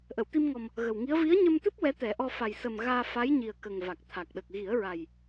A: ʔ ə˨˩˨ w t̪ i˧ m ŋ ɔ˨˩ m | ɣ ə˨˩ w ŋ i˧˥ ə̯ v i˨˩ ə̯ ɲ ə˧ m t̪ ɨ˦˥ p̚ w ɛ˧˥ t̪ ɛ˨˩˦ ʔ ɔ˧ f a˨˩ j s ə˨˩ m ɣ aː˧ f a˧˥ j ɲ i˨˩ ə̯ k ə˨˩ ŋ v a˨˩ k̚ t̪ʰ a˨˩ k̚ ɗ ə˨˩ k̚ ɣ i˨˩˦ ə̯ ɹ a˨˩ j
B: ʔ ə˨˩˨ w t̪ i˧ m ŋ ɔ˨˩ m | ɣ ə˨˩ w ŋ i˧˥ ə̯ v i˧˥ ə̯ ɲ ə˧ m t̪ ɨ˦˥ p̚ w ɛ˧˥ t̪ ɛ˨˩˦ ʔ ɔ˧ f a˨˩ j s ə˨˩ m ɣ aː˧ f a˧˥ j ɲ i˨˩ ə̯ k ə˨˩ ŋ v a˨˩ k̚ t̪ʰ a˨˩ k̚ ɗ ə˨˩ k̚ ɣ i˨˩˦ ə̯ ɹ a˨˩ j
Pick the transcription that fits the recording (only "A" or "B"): B